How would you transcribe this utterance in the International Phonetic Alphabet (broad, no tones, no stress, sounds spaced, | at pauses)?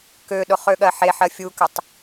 k ø ɗ ʊ χ ø ɠ ɜ ħ e ħ ɜ fʲ u k ʏ tˤ